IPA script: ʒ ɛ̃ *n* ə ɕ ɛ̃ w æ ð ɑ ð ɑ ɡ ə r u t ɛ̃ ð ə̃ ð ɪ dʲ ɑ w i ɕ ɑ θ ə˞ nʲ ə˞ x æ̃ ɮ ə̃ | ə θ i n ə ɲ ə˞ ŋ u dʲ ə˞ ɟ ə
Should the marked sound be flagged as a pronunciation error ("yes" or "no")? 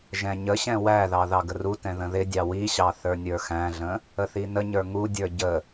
yes